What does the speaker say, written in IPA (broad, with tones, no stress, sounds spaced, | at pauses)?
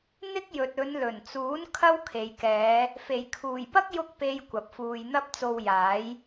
n̪ ɪ˥ k̚ j ɵ˨ t̚ ɵ˨˧ n l ɵ˨˩ n t͡s uː˨˥ n kʰ ɐ˥ w kʰ e˨ j k ɛː˨˧ | f e˨˩ j kʰ uː˨˩ j p ɐ˥ k̚ j ʊ˥ k̚ p e˥ j kʷ ɐ˨ p̚ f uː˧ j n̪ ɐ˥ p̚ t͡s o˧ w j aː˨˥ j